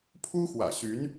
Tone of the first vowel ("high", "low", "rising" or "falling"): high